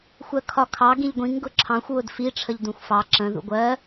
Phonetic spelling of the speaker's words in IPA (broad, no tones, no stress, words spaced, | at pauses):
xʷɜkʰɒkʰɑ ɡĩʎɡʷĩŋ ɡʊǁʰɑ̃xʷ wʊdfi ʈ͡ʂʰəʎdũxʷfɑ ǁə̃ ðṵɡʷɜ